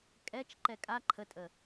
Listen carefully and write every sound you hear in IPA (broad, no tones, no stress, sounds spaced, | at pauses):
kʼ ɛ t͡ʃ ǃ ɛ kʼ a ǃʰ ə tʼ ə